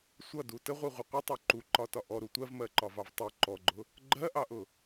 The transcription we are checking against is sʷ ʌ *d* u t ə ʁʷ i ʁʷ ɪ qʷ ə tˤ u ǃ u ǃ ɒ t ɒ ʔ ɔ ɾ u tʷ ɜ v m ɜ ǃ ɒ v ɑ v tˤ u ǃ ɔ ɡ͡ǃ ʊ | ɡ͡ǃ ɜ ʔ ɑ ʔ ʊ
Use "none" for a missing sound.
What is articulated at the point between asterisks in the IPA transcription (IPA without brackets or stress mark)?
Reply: d